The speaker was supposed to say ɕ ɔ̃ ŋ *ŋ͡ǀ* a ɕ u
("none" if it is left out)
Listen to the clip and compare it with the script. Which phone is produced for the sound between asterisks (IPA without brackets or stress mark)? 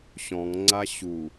ŋ͡ǀ